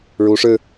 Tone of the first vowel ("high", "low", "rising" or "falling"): rising